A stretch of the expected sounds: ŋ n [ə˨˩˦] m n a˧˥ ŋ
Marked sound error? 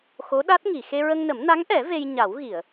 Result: no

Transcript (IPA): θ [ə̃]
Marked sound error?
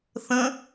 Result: no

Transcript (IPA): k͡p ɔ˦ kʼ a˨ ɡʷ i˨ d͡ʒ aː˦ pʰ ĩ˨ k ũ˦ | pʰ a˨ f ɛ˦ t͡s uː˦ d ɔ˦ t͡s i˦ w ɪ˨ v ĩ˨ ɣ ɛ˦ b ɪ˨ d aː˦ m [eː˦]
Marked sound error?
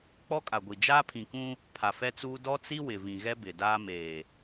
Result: yes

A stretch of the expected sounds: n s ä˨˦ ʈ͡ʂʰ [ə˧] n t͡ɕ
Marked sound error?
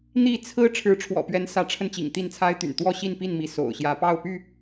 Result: no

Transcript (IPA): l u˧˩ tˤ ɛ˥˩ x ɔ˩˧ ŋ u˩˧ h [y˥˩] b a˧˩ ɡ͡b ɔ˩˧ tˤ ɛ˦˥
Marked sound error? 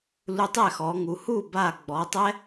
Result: yes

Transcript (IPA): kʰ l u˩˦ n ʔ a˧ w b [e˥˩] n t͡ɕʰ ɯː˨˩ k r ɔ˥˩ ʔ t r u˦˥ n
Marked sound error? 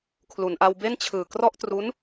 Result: no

